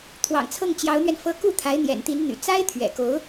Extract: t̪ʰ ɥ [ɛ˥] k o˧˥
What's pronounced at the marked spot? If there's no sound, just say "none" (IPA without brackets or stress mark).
ɛ̰˨˩